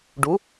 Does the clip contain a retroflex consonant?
yes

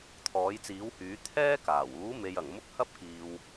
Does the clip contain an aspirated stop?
yes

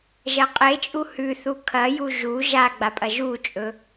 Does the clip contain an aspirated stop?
yes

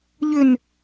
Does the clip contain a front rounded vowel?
yes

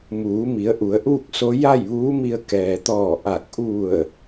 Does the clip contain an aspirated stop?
no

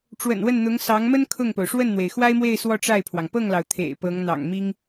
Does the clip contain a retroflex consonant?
yes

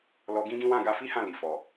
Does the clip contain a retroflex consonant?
no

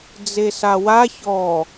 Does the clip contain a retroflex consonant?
no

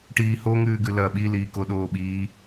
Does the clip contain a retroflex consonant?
yes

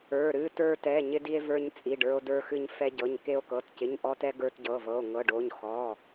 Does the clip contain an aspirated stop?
no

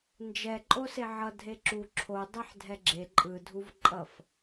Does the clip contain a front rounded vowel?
no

